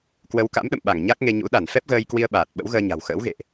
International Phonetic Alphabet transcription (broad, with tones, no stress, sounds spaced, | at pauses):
k w ə˨˦ w k a̰˧˥ m ɗ ə̰˧˨ m ɓ a˧˩ ŋ ɲ a˦˥ k̚ ŋ e˧ ɲ ṵ˧˥ ɗ a˧˩ n f ɛ˦˥ p̚ ɣ əː˧ j k w i˧ ə̯ ɓ aː˨˩ t̚ ɓ ə̰˧˥ w ɣ əː˧ ɲ a̤˨˩ w x ə̰ː˧˥ w ɣ ḛ˧˨ ʔ